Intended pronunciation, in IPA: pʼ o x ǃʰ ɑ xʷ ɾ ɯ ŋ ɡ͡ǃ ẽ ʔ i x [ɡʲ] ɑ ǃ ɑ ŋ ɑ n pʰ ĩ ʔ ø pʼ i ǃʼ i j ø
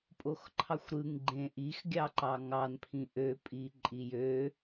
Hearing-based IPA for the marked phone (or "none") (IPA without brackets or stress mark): ɡʲ